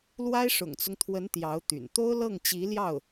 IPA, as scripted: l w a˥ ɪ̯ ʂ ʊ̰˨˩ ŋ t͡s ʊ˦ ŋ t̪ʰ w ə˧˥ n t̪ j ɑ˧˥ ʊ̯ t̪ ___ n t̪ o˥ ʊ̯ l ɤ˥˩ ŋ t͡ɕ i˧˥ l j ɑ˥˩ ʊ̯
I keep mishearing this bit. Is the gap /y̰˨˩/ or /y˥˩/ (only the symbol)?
y̰˨˩